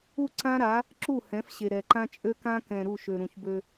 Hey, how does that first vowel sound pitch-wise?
falling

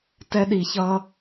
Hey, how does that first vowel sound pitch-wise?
high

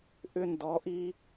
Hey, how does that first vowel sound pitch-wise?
high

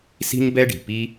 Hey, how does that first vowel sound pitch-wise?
high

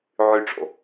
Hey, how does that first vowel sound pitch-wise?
low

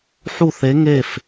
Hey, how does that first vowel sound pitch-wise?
falling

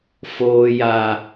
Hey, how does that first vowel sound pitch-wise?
low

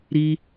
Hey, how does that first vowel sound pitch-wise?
high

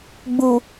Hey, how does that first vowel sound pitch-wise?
low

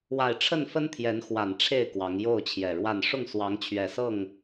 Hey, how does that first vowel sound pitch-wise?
low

